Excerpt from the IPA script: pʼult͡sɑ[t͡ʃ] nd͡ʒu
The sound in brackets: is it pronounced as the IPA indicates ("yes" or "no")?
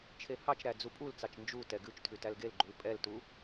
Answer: yes